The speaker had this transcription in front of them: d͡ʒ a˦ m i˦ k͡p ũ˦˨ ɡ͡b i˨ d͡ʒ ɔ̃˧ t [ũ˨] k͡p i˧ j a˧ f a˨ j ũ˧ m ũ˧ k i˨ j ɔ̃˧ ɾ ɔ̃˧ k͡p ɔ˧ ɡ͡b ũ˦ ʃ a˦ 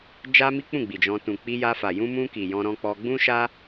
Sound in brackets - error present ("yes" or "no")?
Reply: no